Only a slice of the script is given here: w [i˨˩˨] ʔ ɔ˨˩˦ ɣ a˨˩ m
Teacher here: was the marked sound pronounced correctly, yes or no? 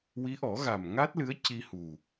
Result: no